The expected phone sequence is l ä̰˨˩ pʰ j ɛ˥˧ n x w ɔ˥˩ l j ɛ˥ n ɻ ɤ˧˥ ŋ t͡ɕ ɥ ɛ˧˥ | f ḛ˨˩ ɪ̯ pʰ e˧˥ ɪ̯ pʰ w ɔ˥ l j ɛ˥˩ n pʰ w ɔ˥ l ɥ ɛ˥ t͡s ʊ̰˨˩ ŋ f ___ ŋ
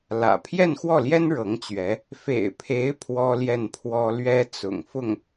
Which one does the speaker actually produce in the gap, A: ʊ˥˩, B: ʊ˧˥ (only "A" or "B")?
A